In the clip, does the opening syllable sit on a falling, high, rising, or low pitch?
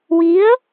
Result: rising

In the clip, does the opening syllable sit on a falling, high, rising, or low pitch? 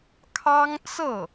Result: high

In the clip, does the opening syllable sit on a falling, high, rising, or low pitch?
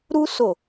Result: high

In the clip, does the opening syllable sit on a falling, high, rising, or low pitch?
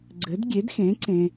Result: rising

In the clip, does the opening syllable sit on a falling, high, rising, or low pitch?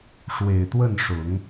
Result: low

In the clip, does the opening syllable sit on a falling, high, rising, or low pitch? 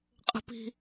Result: high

